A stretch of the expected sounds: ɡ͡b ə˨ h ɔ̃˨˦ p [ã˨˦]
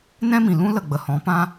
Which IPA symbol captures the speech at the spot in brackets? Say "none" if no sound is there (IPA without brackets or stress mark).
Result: ã˦